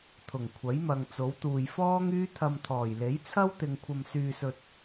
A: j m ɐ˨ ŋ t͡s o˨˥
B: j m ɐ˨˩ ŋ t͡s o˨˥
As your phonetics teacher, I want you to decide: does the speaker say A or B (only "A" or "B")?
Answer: A